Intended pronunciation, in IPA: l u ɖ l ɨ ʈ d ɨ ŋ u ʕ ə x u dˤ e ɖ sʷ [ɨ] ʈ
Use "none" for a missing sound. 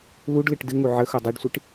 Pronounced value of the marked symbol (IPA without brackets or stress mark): ɨ